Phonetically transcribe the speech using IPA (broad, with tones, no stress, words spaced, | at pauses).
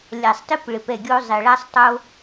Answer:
lʲa˨sˤtɪ˦p ɭɪ˨pɛ˦˨ɡʲo˦ zˤe˨ɭa˦sˤ tˤo˦